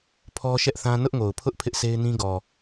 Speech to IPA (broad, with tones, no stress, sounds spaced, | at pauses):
pʰ ɔ˦ ʃ ɛ˦ ʔ θ ã˦ n ʊ˦ ʔ ŋ o˨ ʊ̯ pʰ ʊ˦ ʔ pʰ ɪ˦ ʔ sʰ e˦ ɪ̯ n ĩ˦ ɡ ɔ˨